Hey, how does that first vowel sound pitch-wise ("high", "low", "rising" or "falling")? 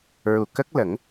low